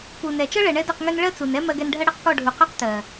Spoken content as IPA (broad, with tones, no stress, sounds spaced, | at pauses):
p u˨ n ɛ˨ t͡ʃ ɤ˦ ɭ ɛ˨ ɳ ɛ˦ d ɤ˦˨ q ŋ ø˦ n ɭ ɜ˦ t͡s u˨ n ɛ˦ m ɜ˧ ɡ ɛ˧ n ɖʱ ɜ˦ ɽ ɤ˦ q k ɔ˦˨ ɖʱ u˨ q ø˦ q t ɜ˨